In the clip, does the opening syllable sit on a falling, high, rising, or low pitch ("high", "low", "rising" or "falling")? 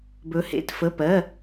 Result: rising